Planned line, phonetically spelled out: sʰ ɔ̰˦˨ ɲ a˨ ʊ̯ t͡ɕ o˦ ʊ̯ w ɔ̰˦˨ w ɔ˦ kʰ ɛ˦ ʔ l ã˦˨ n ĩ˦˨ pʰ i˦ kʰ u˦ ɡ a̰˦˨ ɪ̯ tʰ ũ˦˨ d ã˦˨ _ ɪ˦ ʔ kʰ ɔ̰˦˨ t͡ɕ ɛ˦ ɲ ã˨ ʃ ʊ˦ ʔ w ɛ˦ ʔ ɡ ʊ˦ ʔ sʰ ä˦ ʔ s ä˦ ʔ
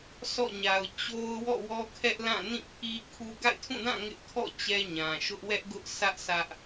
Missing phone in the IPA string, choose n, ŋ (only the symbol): ŋ